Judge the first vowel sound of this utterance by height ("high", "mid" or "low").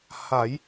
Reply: low